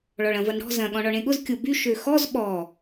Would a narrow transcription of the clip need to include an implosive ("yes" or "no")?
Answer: yes